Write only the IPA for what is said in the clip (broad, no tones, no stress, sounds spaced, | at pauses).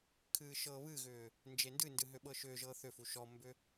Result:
kʰ ɨː ʃ ɤː β ɨ ɣ ʏː | n d͡ʒ e n d ɨ n d ɨ ɦ ʏ ɓ ɤ ʃ ʏː ʒ ɤː θ ʏ f u ʃ ɔ m b ʏ